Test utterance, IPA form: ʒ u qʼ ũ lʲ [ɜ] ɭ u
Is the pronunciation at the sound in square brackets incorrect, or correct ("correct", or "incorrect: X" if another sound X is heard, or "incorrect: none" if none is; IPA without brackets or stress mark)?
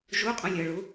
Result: correct